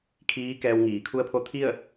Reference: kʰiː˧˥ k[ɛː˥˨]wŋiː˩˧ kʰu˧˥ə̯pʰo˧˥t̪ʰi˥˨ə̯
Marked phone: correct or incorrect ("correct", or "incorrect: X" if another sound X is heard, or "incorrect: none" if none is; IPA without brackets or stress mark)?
incorrect: ɛː˧